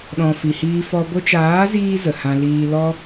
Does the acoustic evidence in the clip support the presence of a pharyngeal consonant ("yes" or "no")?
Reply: no